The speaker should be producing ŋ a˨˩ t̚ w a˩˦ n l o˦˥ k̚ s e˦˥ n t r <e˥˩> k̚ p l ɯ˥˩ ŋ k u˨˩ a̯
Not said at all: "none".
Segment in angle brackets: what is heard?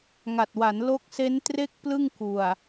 e˥˩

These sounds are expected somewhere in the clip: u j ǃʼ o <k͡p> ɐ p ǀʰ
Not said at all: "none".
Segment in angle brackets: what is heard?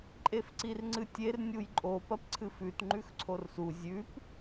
p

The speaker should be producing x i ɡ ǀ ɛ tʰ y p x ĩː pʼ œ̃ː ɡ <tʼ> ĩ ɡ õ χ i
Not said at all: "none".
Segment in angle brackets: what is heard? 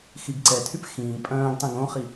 tˤ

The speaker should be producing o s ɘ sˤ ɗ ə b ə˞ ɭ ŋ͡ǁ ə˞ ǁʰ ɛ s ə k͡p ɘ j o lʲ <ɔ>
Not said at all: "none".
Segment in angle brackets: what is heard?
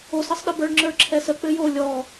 ɔ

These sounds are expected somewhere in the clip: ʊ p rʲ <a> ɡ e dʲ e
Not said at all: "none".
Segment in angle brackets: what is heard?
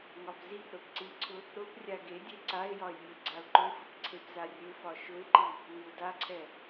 a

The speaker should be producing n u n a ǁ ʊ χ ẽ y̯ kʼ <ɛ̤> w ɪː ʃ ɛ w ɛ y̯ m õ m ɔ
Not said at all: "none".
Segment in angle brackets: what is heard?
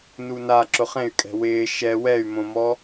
ɛ̤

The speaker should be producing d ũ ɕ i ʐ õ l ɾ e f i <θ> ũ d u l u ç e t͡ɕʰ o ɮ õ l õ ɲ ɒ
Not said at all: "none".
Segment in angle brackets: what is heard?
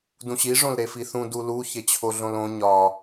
θ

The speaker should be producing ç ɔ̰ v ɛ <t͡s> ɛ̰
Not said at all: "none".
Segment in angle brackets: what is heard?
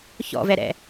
ɾ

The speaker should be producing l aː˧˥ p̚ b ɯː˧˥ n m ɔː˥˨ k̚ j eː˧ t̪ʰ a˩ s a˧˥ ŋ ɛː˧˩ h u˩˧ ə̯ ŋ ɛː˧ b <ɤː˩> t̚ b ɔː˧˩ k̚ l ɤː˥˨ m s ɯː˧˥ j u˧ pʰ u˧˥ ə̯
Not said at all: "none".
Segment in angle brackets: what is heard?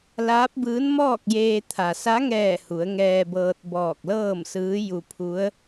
ɤː˧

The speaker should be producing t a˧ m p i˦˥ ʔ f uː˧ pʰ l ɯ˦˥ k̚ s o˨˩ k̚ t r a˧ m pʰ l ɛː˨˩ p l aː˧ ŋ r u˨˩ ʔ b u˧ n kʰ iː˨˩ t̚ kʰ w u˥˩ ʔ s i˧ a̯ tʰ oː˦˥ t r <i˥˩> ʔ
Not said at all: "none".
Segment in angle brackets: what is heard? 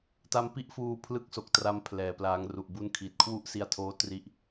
i˥˩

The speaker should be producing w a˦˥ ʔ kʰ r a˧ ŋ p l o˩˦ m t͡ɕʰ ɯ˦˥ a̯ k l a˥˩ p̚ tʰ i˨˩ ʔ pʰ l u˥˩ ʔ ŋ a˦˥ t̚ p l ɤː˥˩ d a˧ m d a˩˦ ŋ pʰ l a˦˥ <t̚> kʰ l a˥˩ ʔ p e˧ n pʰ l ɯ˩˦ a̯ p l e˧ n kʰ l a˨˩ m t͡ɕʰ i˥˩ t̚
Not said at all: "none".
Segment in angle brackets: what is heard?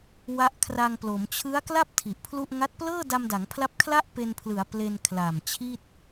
p̚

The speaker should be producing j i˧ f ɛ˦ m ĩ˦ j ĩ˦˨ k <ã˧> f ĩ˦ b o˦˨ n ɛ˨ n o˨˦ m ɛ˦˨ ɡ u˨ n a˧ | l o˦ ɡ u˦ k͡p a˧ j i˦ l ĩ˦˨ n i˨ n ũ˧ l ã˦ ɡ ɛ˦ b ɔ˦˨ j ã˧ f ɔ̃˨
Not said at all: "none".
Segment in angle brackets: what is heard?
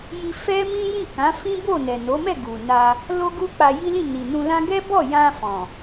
ã˨˦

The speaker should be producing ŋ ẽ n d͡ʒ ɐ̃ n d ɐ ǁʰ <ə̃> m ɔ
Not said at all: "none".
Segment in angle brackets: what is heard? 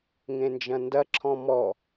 ɔ̃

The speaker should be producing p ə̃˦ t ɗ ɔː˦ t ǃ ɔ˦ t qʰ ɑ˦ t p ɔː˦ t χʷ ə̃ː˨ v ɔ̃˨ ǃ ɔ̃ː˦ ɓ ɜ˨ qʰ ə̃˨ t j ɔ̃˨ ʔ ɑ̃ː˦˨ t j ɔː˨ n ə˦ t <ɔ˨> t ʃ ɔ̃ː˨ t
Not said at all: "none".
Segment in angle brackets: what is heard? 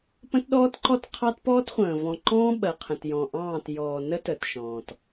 ə˨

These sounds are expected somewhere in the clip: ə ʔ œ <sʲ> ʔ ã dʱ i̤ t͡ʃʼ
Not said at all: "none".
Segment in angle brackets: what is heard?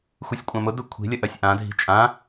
sʲ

